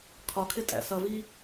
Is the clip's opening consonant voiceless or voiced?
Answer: voiceless